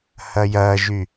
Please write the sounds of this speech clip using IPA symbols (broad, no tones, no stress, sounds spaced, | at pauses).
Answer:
h ɐ j ɐ ʒ y